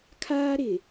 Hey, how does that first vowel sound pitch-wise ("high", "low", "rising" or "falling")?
high